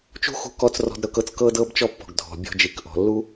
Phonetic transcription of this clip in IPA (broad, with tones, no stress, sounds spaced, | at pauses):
t͡ʃ ṳ˥ x ṳ˧ k ɔ˧ t͡s r ɔ̤˧ d ɾ ɤ˧ k ɤ˧ t͡s k ɤ˧ d ɤ˧ b t͡ʃ ɔ˥ pː ɔ̤˩ ɡ dʱ ɔ̤˩ bʲ ɔ̤˧ d͡ʒ i˩ k ʔ ɔ̤˩ lː u˥